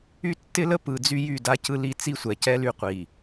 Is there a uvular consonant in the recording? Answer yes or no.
yes